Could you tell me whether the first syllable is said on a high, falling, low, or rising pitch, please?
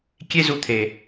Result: high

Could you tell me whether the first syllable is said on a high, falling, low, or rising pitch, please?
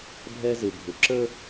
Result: high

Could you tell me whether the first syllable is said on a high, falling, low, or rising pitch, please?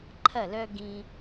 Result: falling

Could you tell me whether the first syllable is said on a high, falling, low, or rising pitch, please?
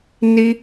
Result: high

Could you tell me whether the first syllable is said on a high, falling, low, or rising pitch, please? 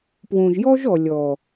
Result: low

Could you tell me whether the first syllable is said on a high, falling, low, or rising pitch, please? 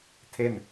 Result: falling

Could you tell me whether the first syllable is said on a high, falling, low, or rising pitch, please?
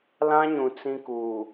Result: high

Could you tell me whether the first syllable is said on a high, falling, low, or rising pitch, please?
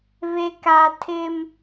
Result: low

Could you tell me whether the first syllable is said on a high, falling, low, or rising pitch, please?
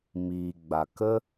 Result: low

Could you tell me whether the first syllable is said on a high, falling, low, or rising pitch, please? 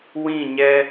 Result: falling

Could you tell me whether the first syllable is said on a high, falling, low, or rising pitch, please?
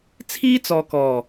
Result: high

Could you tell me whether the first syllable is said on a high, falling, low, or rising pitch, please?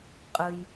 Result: low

